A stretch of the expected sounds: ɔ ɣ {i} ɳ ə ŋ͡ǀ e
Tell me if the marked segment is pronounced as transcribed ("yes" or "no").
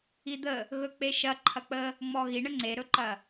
yes